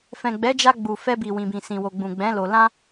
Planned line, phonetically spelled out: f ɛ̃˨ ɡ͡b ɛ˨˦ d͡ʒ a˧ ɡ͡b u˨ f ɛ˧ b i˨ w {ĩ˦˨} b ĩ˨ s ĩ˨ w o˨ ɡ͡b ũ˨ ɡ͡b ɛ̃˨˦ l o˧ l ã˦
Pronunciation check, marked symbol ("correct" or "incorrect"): incorrect